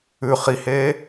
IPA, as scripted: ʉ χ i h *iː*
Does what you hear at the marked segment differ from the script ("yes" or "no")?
yes